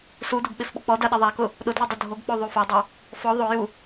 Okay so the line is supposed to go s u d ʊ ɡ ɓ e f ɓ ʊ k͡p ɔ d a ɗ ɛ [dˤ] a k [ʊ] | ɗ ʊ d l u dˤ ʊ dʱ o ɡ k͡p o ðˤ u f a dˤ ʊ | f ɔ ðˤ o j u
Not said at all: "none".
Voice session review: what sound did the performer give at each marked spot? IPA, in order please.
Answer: ðˤ, ʊ

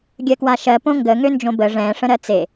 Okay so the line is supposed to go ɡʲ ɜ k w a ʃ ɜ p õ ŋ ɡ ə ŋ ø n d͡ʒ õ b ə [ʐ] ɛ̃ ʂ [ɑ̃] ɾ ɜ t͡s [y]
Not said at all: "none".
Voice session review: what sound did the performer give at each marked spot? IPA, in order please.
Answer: ʐ, ə̃, e

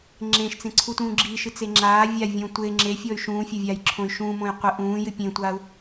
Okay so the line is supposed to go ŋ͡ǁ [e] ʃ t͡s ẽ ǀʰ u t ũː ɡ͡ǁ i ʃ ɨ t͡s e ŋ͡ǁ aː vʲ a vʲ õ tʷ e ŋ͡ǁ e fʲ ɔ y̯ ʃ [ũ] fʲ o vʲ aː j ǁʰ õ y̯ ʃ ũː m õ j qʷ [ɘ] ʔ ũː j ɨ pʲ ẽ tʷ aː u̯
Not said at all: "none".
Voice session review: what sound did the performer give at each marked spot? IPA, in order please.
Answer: ẽ, ũː, ɘ

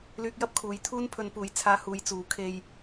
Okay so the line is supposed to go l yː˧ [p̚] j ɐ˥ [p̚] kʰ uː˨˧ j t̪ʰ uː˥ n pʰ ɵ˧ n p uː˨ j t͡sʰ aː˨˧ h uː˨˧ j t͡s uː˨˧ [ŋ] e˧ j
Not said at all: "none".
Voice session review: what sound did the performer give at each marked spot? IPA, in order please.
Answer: k̚, p̚, kʰ

